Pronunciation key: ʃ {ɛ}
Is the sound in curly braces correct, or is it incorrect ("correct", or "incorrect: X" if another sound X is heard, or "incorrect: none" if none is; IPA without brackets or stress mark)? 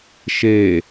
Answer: incorrect: e